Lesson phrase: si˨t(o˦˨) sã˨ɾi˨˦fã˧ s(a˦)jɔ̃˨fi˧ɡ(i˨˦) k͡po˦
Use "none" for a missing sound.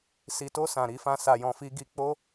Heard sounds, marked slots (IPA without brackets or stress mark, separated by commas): o˧, a˨, i˧